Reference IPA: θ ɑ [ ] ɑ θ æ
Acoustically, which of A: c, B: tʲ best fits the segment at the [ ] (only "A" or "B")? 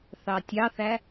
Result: B